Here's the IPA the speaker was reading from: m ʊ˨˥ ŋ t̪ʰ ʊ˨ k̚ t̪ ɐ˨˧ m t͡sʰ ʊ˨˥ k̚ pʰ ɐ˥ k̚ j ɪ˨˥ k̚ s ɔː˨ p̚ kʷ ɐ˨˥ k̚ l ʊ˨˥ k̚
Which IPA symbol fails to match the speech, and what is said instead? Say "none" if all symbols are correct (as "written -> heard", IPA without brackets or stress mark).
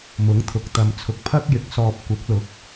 none